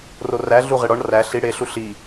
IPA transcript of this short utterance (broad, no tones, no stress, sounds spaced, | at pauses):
r o r æ ɮ u ʁ e ɽ ɒ ɳ r æ ɬ i ɽ e ɬ u ɬ i